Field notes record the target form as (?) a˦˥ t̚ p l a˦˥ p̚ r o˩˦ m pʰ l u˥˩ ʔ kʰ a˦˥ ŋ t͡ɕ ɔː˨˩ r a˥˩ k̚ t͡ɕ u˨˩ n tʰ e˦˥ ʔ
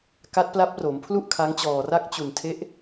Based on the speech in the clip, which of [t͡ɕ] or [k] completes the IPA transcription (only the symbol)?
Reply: k